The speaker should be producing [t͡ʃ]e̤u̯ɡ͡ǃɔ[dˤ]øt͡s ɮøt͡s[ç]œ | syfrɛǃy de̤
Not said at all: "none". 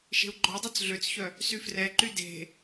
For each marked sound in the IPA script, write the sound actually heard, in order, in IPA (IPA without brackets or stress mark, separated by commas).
ʃ, dˤ, ç